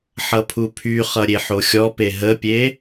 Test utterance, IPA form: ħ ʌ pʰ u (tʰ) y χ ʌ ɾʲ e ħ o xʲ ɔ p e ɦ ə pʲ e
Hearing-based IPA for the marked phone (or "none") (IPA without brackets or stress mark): pʰ